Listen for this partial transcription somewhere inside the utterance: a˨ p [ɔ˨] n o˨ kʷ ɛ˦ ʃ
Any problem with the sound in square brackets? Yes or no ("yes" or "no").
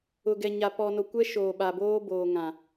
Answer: no